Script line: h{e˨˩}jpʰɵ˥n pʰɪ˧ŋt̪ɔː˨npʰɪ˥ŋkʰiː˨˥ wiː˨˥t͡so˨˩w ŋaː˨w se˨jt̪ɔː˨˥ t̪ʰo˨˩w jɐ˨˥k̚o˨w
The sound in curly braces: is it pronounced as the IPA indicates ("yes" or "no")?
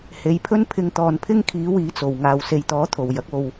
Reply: no